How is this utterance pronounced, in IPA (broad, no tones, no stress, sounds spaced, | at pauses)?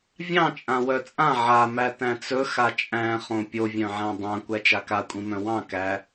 vʲ ɑ̃ t͡ʃʼ ã w œ t͡sʼ ã ʕ a m æ t æ̃ t͡s ɵ x a t͡ʃʼ æ̃ χ õ pʲ o vʲ œ̃ ʕ æ̃ dˤ ã kʷ æ t͡ʃ a k a kʷʼ ĩ m œ̃ w ɑ̃ k æ